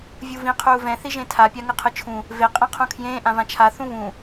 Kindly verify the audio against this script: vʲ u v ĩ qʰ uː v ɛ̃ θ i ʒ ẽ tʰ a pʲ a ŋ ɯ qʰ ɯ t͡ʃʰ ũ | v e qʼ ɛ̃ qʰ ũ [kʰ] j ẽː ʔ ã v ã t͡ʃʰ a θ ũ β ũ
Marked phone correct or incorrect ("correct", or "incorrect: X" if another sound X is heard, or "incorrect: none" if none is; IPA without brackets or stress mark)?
correct